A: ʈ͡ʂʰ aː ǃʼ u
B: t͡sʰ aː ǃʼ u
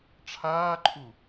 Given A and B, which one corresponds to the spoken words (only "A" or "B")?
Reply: A